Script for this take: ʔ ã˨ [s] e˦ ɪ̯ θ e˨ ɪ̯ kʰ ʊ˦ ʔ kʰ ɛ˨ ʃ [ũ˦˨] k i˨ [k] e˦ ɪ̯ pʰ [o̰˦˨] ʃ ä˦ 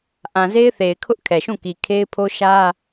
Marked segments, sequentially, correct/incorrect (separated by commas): incorrect, correct, incorrect, incorrect